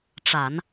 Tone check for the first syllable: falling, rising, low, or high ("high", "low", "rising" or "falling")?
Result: low